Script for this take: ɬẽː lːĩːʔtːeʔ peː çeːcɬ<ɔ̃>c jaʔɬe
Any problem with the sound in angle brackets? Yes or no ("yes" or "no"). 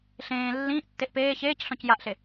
no